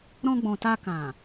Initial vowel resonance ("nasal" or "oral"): nasal